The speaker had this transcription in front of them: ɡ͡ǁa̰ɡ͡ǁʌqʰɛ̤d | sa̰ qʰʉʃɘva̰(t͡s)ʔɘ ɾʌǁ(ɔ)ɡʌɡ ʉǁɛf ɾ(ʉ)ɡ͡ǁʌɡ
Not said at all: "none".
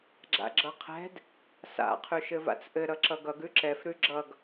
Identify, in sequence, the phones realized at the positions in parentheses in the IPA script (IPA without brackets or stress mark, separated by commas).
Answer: t͡s, ʌ, ʉ